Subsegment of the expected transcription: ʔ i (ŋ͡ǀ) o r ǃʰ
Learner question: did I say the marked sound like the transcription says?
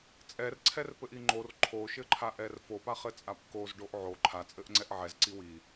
no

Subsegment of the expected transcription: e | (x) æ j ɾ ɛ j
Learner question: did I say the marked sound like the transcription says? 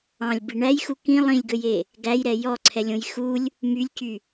no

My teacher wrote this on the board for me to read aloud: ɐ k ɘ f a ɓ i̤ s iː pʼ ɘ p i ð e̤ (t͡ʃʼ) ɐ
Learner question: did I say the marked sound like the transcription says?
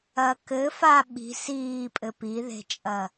yes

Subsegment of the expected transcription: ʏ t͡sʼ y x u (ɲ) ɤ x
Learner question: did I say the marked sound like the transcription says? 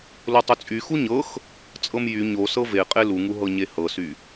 yes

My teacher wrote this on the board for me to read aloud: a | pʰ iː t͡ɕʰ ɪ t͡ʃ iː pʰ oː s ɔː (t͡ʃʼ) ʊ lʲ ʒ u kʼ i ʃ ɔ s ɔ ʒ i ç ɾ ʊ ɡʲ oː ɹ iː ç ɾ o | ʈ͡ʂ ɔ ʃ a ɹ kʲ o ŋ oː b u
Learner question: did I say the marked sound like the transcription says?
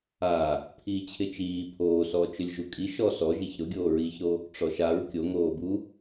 no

